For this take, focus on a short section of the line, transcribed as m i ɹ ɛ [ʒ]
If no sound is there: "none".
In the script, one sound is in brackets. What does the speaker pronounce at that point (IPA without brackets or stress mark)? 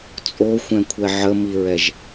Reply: ʒ